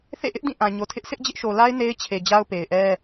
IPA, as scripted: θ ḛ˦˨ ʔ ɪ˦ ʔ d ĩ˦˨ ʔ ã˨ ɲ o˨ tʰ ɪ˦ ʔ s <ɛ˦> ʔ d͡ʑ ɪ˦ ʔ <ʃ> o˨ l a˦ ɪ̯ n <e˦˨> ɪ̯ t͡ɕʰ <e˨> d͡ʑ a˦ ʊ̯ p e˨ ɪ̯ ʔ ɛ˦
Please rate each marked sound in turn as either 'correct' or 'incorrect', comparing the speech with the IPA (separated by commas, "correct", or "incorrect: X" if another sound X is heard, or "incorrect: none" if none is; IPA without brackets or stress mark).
incorrect: ɪ˦, correct, incorrect: e˦, correct